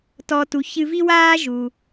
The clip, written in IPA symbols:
tɔ˧tu˩˥çɨ˧ vi˥waː˥ʒu˩

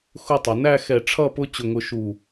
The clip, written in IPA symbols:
xʊ˥˧tˤə˩˧ næ˥˧ xɛ˧˩ʈ͡ʂʰʌ˥˧ pʊ˥t͡ɕʊ˧˩ŋʊ˧ʃu˧˩

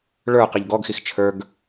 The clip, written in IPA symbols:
ɭə˞ qiʎɡɔɡxix t͡ʃʰə˞ɡ

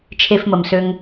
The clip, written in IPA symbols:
t͡ʃʰe˦fmə˩msø˦ŋ

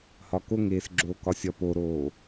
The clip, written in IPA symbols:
hɒkoŋeːsɡ͡ǁoː kɒsʲɒ poɾoː

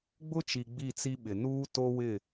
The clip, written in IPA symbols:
ɡ͡bʊ˦t͡ʃi˨ ɡ͡bi˦˨t͡si˦ɓɪ˨ nuː˦ to˦wɪ˦˨

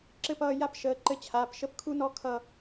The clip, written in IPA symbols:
ǁɘ˦˨pʌː˦˨ ja˥pʃəː˨˥ ǃɘ˦˨t͡ɕʰaː˩˧˩pʃə˥p kʰu˥nɔ˥kʰʌ˦˨

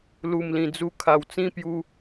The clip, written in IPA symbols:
lu˨˩mlĩ˨˩d͡zu˧ kʰa˨˩wt͡sĩ˥˧pju˧

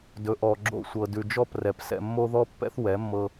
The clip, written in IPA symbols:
dɵ˨ʔɔ˨ ɡ͡ǁo̰˧sʷɤ˨ dʉ˨d͡ʒɔ˦˨p rɛ˨psɛ̰˧mːo˦ ðɔ˦pːɛ̰˦θ wɛ˨˦mːɤ˧

